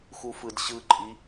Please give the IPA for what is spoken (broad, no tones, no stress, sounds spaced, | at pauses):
x u f ɯ d ɕ ɯ ǃʼ i